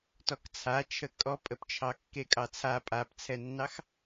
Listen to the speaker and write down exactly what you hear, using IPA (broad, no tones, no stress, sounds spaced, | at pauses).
t ɔ k t͡sʰ a t͡ʃʰ ə kʼ ɔ pʼ ə p t͡ʃʰ ɑ kː e kʼ ɑ t͡sʰ a pʼ a p t͡sʰ ɛ nː ɑ x